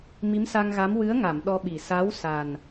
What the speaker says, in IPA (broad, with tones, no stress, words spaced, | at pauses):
mi˧˥msa˧ŋɣa˧˥m wɨ˧˥ə̯ŋa˨˩˨m ɗɔ˧ɓi˨˩˨ sa˧˥w sa˨˩n